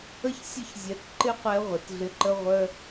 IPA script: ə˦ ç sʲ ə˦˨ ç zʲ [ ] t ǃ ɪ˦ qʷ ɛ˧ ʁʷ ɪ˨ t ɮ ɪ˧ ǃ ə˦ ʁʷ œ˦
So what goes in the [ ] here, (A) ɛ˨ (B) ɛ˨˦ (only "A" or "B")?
B